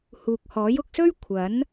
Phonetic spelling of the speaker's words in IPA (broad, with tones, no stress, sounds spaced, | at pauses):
h uː˨ k̚ h ɔː˨˥ j ʊ˧ k̚ s ɵ˥ ɥ kʷʰ ɐ˨˥ n